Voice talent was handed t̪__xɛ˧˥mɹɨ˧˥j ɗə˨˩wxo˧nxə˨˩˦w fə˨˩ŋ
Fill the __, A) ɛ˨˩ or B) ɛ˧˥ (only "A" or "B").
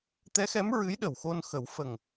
B